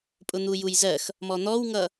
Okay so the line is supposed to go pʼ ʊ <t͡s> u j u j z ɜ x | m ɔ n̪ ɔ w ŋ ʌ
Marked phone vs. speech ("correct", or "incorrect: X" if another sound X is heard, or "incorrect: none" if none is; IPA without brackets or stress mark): incorrect: n̪